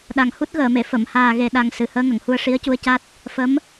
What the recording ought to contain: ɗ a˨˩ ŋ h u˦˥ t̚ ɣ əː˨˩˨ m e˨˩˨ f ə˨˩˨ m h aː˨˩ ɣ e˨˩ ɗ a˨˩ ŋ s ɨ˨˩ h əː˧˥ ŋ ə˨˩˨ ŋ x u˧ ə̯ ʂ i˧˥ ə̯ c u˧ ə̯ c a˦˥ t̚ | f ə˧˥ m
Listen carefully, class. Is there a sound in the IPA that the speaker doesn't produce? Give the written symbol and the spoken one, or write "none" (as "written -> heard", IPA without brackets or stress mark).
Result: x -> h